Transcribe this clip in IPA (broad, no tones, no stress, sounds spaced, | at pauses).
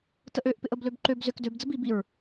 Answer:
t ə ʔ ø ʔ p ɪ ʔ ə b l ø b ǃ ø b z ʏ k d ø b d͡z ə b i b i ɹ